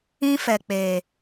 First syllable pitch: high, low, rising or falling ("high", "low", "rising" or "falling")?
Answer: high